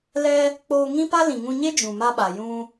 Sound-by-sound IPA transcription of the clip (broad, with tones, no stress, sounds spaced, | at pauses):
l ɛ˧ | k͡p oː˧ ŋ ĩ˦ p a˦ l ĩ˨ ŋ ũ˧ ɲ e˦ d͡ʒ ũ˨ m a˧ ɓ a˨ j ũ˧